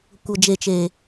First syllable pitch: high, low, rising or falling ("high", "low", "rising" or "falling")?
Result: low